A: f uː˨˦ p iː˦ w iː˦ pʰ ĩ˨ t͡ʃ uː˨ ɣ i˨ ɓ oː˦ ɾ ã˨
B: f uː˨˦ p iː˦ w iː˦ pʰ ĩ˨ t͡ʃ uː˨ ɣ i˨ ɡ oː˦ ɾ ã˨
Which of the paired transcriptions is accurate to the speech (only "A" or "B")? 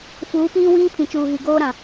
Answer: B